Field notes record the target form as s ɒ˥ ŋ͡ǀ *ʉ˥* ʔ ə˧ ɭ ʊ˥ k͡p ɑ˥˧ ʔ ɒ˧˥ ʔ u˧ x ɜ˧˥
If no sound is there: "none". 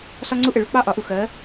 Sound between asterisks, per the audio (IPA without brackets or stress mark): u˥